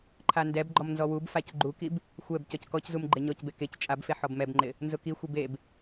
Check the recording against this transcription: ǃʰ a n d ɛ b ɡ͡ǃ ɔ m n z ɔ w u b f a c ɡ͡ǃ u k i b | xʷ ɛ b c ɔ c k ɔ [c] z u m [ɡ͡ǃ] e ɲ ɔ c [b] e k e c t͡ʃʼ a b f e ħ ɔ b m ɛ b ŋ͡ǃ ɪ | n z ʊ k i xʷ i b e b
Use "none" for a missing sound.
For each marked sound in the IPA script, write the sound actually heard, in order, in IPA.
c, ɡ͡ǃ, b

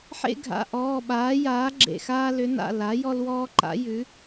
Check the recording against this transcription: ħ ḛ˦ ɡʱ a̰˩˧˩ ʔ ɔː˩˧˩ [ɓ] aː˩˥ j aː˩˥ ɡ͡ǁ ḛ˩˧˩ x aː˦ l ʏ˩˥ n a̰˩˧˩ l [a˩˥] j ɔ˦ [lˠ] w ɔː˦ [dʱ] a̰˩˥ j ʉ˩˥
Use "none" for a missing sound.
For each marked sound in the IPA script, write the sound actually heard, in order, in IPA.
ɓ, a˩˥, l, ǃ

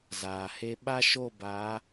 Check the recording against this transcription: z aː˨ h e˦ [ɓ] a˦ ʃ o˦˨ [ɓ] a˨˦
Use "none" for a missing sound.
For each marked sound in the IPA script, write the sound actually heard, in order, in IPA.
ɓ, b

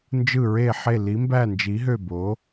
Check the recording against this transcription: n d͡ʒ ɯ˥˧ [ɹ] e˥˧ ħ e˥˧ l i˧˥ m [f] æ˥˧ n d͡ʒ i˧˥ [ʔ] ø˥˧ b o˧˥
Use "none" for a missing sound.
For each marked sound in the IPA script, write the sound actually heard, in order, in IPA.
ɹ, b, ɦ

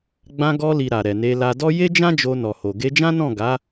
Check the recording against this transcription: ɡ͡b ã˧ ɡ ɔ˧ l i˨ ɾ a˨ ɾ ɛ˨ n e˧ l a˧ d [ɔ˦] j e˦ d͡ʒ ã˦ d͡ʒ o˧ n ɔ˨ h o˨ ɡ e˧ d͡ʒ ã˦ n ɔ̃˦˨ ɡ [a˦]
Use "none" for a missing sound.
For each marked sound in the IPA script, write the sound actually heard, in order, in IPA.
ɔ˦, a˨˦

